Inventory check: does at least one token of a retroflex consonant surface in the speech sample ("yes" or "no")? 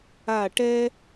yes